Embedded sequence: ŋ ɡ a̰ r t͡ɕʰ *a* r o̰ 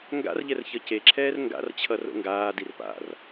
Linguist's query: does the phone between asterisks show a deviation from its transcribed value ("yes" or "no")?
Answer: yes